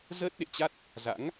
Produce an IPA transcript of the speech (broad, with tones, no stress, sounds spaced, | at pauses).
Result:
z əː˦˥ t̚ ɗ ḛ˧˨ t͡ɕ a˦˥ t̚ | z a̰˧˥ ŋ